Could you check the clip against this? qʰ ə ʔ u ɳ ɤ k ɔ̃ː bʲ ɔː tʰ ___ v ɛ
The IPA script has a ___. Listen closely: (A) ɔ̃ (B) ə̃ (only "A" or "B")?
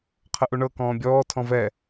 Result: A